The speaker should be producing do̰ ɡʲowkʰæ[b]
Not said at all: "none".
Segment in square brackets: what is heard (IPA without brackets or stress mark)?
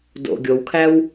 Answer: w